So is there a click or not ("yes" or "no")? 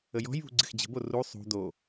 yes